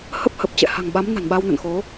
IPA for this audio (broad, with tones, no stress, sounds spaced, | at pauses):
h ə˦˥ p̚ h ə˨˩ p̚ t͡ɕ ɛ̰˧˨ h a̤˨˩ ŋ ɓ a˨˦ m n a̤˨˩ n ɓ a˧ w n ə̰˧˨ n x o˨˦